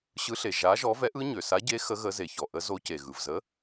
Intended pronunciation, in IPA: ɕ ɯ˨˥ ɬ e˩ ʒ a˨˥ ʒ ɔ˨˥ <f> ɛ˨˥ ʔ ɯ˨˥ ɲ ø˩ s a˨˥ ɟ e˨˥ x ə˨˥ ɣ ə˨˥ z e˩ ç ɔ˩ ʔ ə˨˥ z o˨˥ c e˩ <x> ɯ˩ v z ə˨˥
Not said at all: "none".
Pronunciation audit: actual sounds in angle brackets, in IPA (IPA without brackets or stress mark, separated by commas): v, ɣ